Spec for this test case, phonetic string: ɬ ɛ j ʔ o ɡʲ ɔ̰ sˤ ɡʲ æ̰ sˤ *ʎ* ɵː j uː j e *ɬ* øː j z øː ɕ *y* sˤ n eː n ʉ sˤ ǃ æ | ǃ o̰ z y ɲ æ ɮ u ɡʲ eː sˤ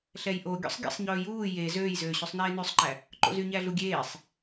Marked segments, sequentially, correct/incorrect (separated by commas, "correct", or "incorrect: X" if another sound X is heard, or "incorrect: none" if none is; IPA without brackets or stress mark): incorrect: ɲ, incorrect: z, correct